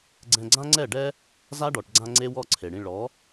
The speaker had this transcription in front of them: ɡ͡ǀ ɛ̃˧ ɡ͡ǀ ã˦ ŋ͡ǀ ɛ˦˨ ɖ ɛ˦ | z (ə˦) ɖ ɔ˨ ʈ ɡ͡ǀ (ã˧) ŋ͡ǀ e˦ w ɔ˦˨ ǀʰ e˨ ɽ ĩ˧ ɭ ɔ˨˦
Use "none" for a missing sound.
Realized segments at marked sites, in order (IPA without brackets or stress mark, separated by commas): a˦, ã˧